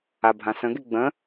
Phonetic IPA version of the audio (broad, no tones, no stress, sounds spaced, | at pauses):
a bʱ ã s ə̃ ɡ e ɡ͡b ə̃